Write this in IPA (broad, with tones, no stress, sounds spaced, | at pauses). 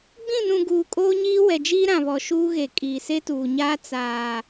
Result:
ɡ͡b ĩ˦˨ n ũ˨ ɡ uː˨ kʼ oː˦ ɲ iː˦ w ɛ˨ d͡ʒ iː˦ ɾ ã˨ β ɔ˨ ʃ uː˦ ɣ e˨ kʼ iː˨ s e˦ t uː˨ ɲ aː˦ t͡s aː˨